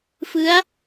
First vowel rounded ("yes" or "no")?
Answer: no